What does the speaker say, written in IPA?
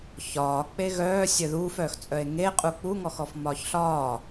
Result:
ç ɒː k͡p e ɣ œː sʲ œ ð uː f œː x t͡sʼ œ e̯ ŋ e qʼ u k͡p u ŋ ɔ x ɔ f m ɒː ç ɬ ɒː

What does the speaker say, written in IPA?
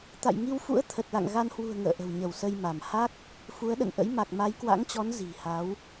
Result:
t̪ a̰˧˨ j ŋ i˧ w f ṵ˧˥ ə̯ t̪ʰ ə˨˩ t̚ l a̰˧˨ ŋ ɣ a˧ n h w ṳ˨˩ ə̯ ŋ ə̰ː˧˨ ʔ ə̤˨˩ w ɲ ə˧˩ w s ə˧ j m a˧˩ m h a˦˥ k̚ | f u˨˦ ə̯ ɗ ə̰˧˨ n ʔ ə̰˧˥ j m a˨˩ k̚ m a˨˦ j k w a̰˧˥ ŋ t͡ɕ ɔ˨˦ n z i̤˨˩ h a˨˦ w

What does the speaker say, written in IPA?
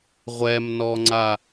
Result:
ʁʷ ɛ m n ɔ ŋ͡ǀ a

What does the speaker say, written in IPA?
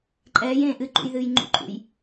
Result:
ǃʼ ɛː j ẽː ʔ ɨ ǃ ṵ j ð ɨː j ŋ͡ǃ ṵ ǃʼ ṵ j

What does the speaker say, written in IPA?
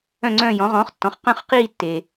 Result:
œ̃˦˨ ŋ͡ǀ œ̃ː˦˨ j ɔ̃˩˥ ʁ ɔ̃ː˩˥ χ tː ɔ̃˩˥ χ q œ̃˦˨ χ q iː˦˨ tː e˩

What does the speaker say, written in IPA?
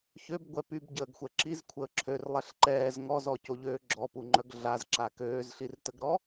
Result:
ç ø b ɡʷ ɛ p y b ɟ əː ɡ xʷ ɛ ǁ i z kʷʰ əː ǁʰ ø r lˠ ɛ ɬ ǃ ɛː z ŋ ɔ z ɔ c o ʎ øː ɡ͡ǁ ɔ p u ŋ͡ǃ œ ɡ ɮ a z ǁ a k øː z ɬ i r t ə ɡ ɾ ɔ

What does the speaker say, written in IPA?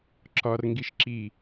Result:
ǁ ɒ r ŋ ɡ i ʃ ǁ i

